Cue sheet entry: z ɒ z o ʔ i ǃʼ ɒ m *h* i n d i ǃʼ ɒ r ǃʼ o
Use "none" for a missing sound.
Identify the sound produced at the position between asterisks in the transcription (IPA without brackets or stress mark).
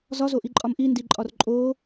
ʔ